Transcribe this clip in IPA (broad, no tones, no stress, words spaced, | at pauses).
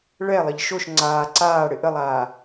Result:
ɭɛlˠɪʎ ʃoʃ ŋ͡ǀaː ǀaːɽɪ ʔəlˠaː